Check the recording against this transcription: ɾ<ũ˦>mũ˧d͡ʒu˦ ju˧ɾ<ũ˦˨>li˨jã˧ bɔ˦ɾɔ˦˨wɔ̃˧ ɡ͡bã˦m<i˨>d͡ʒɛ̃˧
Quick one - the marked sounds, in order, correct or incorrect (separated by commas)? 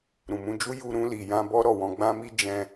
incorrect, incorrect, incorrect